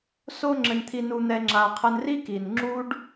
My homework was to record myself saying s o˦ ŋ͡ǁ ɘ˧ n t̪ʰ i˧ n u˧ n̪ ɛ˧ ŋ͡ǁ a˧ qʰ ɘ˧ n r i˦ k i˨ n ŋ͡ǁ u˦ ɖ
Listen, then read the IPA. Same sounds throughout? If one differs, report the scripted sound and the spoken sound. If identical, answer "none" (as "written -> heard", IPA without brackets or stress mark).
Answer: none